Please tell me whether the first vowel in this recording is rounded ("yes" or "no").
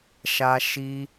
no